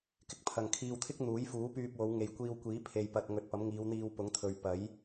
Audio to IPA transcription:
k ɪ˧ k̚ pʰ ɐ˨ ŋ kʰ iː˧ w t̪ʰ ɪ˥ k̚ n̪ uː˨˥ j f uː˨˥ p yː˧ p̚ w o˨˧ w ŋ e˨ j kʷ iː˧ w kʷ iː˨˥ pʰ e˨ j p ɐ˨ t̚ ŋ ɵ˨ t̚ p ɐ˨˥ m ŋ iː˨˧ w n̪ iː˧ w p ʊ˨˥ ŋ t̪ʰ ɵ˨ ɥ p ɐ˨˥ j

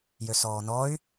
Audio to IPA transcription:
j ø s ɔː n ɔ y̯

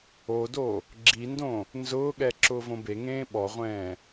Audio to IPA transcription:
o d o | ɡ͡ǁ i n d õ | n z ʊː ɠ ɛ ǁ ʊː v õ b e ŋ ẽː ɓ ɔ ʁʷ ɛ̃ː

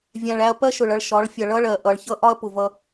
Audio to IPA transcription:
vʲ æ̃˨ ɭ æ˧ ɐ̯ p ɜ˦ ʃ ʊ˨ ɭ ʌ˧ ɭ ʃ ɒ˨˦ ɭ fʲ ʌ˨ ɭ ʌ˦ ɭ ɜ˨ ʔ ʌ˨ ɭ ç ʌ˦ ʔ ɒ˦ ɐ̯ p ʊ˨ v ʌ˧

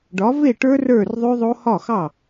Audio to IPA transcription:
ɖ ɒ˩˥ v e˥˩ ʈ ə˞˦˥ r ə˞˥˩ r ðˤ ʉ˦˥ ðˤ o˦˥ h ɒ˥˩ x ɑ˥˩

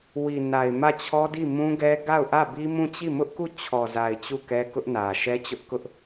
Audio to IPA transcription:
w i˨ n a˨ ɪ̯ m ä˦˨ t͡ɕʰ ɔ˦ d i˦˨ m ũ˦ ɡ ɛ˦ ɡ a˦˨ ʊ̯ ʔ ä˦˨ b i˦ m ũ˦˨ t͡ɕ i˦˨ m ʊ˦ ʔ k u˦˨ t͡ɕʰ ɔ˨ z a˨ ɪ̯ t͡ɕ u˦˨ k ɛ˦ k ʊ˦ ʔ n ä˨ ʃ ɛ˦ t͡ɕ ʊ˦ ʔ k ʊ˦ ʔ

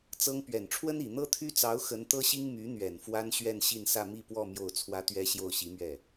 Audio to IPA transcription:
t͡s ɤ˥ ŋ p ɥ ɛ˨˩ n ʈ͡ʂʰ w ə˥ n i˨˩ n̪ ɤ˥ t̪ʰ y˥ t͡s ɑ˧˥ ʊ̯ x ə˧˥ n t̪ ɤ˥ ɕ i˥ ŋ m y˧˥ n̪ ɥ ɛ˨˩ n f w a˥ n ɕ ɥ ɛ˥˧ n ɕ i˥˧ n s ä˥˧ m i˥˧ p w ɔ˥˧ m j o˥˩ ʊ̯ t͡sʰ w ä˥ t̪ ɥ ɛ˥ ɕ j o˥˩ ʊ̯ ɕ i˧˥ m ɥ ɛ˥˩

